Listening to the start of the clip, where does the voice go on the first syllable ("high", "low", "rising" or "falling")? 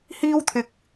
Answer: high